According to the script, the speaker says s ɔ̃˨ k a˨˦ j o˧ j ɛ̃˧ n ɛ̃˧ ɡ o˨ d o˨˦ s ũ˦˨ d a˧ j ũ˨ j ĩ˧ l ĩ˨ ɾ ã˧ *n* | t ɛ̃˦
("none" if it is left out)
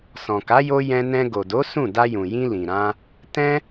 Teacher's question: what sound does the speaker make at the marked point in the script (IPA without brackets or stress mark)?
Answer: none